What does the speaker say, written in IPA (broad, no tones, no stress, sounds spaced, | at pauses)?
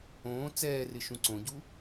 õː t͡s ɛː r ɪ ʃ ũ ǀ õ ɟ u